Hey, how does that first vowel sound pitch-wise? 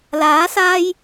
rising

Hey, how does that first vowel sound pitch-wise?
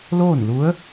falling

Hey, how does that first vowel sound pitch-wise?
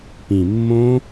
low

